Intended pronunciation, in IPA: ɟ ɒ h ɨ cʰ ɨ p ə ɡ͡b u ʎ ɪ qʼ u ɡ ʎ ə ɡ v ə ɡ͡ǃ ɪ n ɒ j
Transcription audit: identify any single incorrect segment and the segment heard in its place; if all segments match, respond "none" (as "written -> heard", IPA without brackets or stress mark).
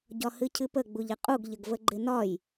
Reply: none